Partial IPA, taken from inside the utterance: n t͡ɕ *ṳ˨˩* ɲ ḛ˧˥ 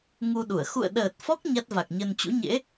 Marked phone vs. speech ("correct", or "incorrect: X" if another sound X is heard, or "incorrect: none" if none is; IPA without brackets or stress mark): incorrect: ṵ˧˥